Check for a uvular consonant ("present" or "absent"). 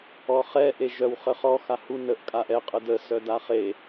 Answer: present